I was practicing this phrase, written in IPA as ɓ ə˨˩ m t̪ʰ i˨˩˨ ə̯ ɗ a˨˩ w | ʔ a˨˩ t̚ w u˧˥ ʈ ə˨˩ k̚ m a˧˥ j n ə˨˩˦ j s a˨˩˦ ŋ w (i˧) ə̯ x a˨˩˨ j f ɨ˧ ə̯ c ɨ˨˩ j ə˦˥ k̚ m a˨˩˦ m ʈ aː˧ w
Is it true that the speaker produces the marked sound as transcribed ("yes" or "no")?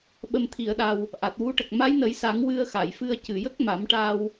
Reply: no